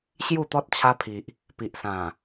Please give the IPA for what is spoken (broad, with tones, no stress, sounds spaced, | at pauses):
ɕ j u˥˧ t̪ ɔ˦ t̚ t͡ɕʰ a˧ pʰ i˨ ʔ | p i˨ ʔ s ã˨˩